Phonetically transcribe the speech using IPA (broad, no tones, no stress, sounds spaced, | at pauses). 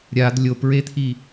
ɾʲ a d lʲ o p ɹ e t̪ʰ i